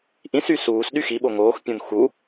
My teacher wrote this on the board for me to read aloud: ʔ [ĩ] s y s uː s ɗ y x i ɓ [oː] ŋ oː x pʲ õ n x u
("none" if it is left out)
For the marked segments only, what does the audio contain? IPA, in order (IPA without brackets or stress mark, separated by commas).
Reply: ĩ, o